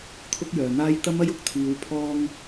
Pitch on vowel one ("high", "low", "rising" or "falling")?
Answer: high